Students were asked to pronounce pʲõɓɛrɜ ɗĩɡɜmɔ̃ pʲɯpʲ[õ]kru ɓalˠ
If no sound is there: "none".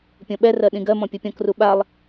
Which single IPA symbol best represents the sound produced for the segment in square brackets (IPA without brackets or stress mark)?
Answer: ɔ̃